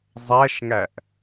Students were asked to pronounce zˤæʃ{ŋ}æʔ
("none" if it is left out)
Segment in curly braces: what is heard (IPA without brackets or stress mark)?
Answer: ŋ